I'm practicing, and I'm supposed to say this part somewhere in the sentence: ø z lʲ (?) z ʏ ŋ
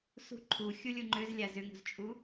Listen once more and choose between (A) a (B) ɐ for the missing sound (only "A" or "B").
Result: A